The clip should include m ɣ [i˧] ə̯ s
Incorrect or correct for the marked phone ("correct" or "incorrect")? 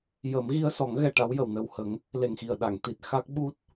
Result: correct